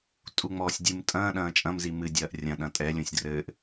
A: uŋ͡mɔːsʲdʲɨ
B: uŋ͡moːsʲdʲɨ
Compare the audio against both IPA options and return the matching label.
A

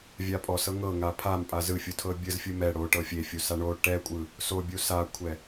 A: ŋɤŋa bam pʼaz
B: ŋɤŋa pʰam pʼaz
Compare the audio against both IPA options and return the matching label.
B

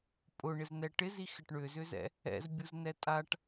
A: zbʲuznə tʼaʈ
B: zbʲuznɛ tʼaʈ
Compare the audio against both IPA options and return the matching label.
B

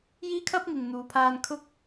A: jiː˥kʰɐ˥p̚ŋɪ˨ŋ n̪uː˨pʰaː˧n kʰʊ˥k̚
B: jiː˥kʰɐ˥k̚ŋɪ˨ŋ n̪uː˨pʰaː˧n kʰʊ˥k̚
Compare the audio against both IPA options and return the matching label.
A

